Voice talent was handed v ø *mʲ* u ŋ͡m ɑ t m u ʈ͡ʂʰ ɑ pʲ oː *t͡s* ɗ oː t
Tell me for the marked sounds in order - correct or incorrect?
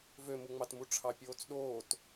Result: incorrect: m, correct

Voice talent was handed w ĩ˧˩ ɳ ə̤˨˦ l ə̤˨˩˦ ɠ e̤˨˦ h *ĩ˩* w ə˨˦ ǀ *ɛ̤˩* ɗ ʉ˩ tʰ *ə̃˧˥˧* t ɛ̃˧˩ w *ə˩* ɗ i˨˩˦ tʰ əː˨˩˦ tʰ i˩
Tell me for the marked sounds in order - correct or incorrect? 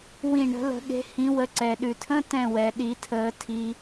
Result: incorrect: ĩ˨˦, incorrect: ɛ˩, correct, incorrect: ɛ˩

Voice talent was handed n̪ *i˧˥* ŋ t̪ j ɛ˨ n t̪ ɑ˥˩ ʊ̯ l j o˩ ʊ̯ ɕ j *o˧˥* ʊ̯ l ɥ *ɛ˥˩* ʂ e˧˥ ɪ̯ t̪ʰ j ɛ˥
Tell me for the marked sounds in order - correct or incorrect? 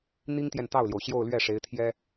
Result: incorrect: i˥, incorrect: o˥˧, correct

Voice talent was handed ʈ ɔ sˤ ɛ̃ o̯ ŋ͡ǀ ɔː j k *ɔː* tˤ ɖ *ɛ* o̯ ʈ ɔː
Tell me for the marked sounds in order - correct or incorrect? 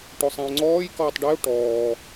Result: correct, incorrect: e

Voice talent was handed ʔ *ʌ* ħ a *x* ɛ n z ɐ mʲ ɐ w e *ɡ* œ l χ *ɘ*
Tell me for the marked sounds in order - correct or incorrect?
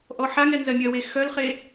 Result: incorrect: ɔ, incorrect: ŋ, incorrect: x, incorrect: e

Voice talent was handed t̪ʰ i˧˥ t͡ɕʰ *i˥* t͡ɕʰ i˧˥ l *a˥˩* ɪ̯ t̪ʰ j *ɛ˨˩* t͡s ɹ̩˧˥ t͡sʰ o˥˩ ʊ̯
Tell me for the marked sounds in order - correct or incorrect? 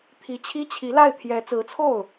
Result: correct, correct, incorrect: ɛ˧˥

